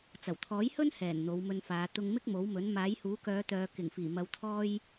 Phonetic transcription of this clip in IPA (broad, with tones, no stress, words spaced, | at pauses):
t͡sɐ˨˩wt̪ʰɔː˨˥jhɵ˥n hɛː˨˩n n̪o˨˧wmɵ˧nfaː˨˧ t̪ʊ˧ŋmɪ˥k̚mo˨˥wmɵ˨˥n maː˨˥jhuː˨˥kœː˨˧ t̪œː˨kɪ˨˩ŋfiː˨˩mɐ˨w t̪ʰɔː˥j